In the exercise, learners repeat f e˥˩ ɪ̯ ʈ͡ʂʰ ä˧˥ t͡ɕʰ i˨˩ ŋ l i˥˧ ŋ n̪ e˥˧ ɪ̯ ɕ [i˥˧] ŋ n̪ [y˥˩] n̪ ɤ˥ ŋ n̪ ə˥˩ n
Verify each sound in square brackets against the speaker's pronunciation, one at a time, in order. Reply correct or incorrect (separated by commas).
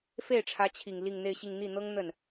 correct, incorrect